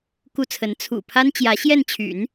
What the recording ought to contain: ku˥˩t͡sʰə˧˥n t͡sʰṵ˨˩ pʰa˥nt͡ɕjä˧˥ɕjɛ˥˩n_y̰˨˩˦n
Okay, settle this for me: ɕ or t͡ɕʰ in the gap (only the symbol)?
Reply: t͡ɕʰ